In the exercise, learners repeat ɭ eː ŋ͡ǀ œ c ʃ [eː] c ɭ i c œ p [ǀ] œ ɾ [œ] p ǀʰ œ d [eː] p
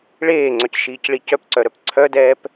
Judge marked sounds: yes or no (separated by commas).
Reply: no, yes, yes, no